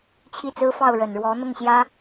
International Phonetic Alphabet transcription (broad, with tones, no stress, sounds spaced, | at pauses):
t͡ɕʰ i˥˩ t͡s ɹ̩˥ f ɑ˥˩ ʊ̯ ɻ ə˨˩ n ɻ w ɔ˧˥ n̪ ʊ˥˩ ŋ ɕ j ä˥